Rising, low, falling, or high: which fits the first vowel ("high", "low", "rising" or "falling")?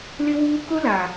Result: high